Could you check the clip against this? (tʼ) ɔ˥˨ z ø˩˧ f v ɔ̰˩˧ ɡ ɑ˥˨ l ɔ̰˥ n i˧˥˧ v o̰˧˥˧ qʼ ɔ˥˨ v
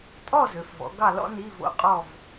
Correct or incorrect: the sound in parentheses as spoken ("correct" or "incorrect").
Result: correct